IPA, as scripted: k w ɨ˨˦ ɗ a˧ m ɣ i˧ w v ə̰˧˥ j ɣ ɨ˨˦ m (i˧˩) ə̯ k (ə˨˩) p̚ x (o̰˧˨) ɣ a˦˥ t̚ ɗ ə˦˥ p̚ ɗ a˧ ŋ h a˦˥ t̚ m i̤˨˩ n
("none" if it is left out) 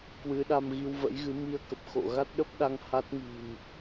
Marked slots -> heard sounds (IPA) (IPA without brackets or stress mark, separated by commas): i˧, ə˨˩, o̰˧˨